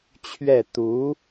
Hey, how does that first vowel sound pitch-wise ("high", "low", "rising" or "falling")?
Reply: falling